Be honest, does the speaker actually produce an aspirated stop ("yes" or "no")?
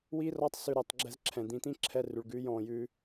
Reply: yes